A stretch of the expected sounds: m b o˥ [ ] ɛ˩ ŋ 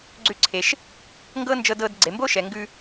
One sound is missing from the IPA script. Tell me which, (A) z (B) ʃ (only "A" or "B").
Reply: B